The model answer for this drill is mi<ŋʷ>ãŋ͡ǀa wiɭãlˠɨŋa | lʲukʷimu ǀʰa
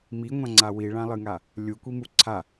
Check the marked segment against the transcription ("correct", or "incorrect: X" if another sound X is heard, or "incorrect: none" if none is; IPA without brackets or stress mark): correct